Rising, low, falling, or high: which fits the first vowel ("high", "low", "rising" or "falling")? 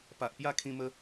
low